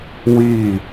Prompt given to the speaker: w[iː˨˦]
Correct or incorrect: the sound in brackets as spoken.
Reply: incorrect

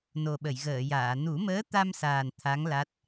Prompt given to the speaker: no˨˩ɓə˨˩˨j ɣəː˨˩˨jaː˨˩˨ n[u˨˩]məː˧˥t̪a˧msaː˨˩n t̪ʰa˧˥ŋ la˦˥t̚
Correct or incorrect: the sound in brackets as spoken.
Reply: incorrect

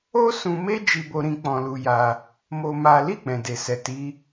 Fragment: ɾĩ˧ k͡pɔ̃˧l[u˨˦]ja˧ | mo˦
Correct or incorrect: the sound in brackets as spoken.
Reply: incorrect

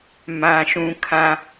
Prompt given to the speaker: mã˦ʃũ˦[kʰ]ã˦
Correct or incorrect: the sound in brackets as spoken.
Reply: correct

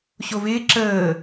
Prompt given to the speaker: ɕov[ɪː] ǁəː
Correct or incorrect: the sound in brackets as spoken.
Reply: correct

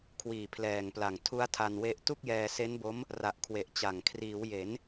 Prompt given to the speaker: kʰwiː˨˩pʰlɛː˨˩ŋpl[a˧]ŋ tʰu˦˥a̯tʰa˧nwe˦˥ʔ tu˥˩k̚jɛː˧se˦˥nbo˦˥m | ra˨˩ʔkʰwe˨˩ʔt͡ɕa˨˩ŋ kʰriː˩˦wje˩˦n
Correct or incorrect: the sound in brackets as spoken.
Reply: incorrect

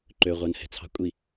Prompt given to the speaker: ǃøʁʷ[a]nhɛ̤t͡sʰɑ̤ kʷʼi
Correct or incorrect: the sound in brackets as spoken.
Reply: incorrect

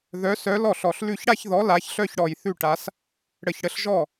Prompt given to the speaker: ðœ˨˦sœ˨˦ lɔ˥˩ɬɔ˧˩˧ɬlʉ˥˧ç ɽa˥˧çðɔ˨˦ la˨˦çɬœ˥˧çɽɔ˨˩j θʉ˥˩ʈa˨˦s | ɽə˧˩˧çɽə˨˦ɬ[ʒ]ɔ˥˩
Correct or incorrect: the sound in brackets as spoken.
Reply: correct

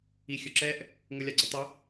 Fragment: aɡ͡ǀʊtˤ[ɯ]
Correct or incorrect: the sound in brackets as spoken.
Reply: incorrect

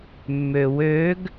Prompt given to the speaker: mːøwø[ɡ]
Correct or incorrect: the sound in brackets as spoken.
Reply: correct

